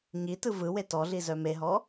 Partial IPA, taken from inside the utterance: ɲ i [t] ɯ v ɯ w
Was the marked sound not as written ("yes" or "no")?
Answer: no